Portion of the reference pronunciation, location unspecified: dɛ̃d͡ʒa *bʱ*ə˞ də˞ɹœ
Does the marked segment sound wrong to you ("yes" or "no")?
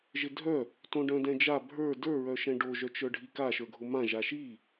no